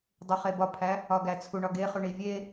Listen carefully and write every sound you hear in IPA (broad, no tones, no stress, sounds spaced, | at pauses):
dˤ u χ e b ɒ pʰ æ | ɒ ɡ æ t͡sʰ u ɳ ɒ ɡ e χ u ɳ i vʲ e